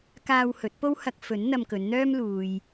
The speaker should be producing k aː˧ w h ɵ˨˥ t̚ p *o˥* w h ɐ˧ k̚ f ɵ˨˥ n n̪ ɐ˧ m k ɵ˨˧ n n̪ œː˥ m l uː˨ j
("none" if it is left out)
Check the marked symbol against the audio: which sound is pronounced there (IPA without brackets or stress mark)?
o˥